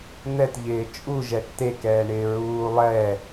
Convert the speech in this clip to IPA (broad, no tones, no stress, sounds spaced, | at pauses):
n̪ ɛ t ʎ ɪː t͡ʃʼ u ʒ ɛ ʈ t e k ɛː ɳ ɪː ɹ uː lˠ ɛ